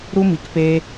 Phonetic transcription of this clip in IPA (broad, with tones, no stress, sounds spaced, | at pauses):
ɾ u˦ m i˧ k p e˦